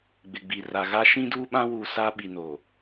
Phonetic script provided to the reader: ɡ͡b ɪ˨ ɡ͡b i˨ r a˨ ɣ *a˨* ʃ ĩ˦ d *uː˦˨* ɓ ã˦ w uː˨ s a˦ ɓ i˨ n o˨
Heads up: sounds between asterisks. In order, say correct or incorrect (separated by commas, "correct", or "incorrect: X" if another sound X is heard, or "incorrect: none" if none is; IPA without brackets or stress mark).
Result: incorrect: a˦, incorrect: uː˦